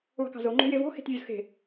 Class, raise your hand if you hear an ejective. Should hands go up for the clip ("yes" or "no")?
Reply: no